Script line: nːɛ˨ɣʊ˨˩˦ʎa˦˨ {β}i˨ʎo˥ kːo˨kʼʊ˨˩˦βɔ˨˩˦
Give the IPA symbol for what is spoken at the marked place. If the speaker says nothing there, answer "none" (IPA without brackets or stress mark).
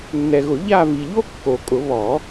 v